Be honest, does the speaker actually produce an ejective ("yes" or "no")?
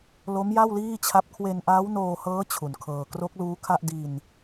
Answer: no